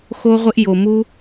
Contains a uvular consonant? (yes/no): yes